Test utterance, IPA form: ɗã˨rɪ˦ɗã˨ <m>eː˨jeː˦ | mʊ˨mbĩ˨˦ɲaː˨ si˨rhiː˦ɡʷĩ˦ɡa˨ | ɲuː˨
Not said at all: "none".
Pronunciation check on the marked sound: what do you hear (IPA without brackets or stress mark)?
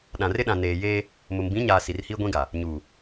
n